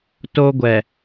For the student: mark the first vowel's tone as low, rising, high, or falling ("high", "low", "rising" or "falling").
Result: high